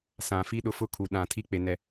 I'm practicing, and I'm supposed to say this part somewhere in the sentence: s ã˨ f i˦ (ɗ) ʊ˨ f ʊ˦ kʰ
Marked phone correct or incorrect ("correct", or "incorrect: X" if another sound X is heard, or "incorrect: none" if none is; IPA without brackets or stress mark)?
correct